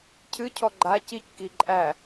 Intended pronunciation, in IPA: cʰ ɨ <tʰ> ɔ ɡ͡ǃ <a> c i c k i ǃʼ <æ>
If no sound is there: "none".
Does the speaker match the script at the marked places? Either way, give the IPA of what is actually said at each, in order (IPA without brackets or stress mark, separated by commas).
cʰ, a, æ